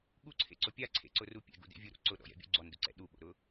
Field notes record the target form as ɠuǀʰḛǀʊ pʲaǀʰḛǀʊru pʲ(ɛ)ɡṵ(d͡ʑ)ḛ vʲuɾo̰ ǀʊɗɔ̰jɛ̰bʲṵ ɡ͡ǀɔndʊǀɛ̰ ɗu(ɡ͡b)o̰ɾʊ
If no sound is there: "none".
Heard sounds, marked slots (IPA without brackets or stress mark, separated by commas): ɛ̰, d, ɓ